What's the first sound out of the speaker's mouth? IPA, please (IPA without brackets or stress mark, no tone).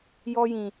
j